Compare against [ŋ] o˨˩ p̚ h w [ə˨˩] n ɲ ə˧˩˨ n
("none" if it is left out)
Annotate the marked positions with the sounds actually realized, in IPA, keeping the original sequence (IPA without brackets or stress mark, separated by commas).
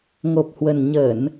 ŋ, ə˨˩